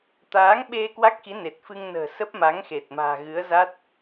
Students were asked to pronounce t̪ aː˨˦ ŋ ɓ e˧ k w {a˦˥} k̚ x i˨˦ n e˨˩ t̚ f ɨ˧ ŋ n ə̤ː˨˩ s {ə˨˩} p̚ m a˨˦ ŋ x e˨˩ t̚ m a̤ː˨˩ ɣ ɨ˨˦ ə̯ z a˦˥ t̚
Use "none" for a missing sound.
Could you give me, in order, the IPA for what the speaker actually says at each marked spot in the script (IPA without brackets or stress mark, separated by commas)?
a˦˥, ə˦˥